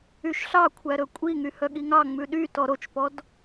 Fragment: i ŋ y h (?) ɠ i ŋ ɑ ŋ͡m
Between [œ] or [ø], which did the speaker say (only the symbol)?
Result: œ